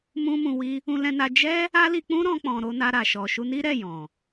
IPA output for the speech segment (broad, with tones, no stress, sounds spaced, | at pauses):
m ũ˦ m ũ˧ w i˦ | ũ˦ l ɛ̃˦ n a˦ d͡ʒ ɛ˦ | a˦ l i˧ k͡p ũ˦ ɾ ɔ̃˦ k͡p ɔ̃˧ ɾ o˦ n a˧ ɾ a˨ ʃ ɔ˨ ʃ u˧ n i˦ ɾ ɛ˦˨ j ɔ̃˨